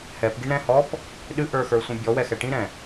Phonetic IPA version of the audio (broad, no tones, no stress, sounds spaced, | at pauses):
h ɛ p ɡ i ɳ ɾ ɛ̃ h ɔ p | ɗ ɨ ʔ ə˞ x ə˞ sʷ ĩ bʲ ɔ w ɛ x ɛ ʈ ĩ ɾ ɛ̃